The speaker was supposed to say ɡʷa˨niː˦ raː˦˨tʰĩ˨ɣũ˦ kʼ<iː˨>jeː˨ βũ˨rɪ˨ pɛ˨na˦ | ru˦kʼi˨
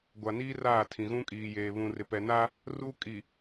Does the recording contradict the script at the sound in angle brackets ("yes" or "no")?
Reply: no